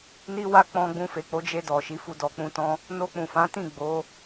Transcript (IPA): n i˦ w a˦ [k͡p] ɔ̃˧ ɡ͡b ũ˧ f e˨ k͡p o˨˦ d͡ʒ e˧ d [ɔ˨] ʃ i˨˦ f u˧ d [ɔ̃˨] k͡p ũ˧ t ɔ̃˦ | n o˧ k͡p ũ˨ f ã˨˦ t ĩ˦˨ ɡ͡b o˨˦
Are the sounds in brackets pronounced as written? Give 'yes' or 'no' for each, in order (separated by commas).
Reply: yes, yes, no